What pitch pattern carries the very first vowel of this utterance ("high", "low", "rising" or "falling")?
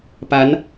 rising